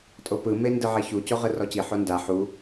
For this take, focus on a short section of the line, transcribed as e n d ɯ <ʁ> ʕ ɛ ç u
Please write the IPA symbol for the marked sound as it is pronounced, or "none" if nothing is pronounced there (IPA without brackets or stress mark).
none